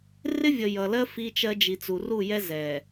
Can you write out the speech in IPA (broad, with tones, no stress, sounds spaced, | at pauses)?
r ɪ˦ vʲ ə˨ j ʌ˨ l ɜ˦ f i˦ t͡ʃ ɜ˦ d͡ʒ i˨ t͡s u˨ r u˦˨ j ɛ˦ z ɛ˨